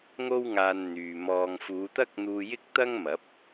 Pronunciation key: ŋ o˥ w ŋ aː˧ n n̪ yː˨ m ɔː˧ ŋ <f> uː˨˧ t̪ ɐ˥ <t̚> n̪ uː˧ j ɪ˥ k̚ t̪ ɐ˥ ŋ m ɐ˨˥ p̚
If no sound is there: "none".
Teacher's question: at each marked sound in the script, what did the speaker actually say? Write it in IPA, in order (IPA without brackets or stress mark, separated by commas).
f, k̚